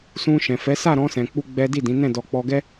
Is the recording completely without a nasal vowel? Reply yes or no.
no